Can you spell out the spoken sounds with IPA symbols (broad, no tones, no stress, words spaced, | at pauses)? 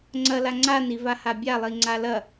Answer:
ŋ͡ǀɐla ŋ͡ǀani vahabʲa lˠiŋ͡ǀalɐ